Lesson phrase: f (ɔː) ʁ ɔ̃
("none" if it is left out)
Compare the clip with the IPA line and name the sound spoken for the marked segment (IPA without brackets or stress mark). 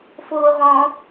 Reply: oː